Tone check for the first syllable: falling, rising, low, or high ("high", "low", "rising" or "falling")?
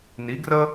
rising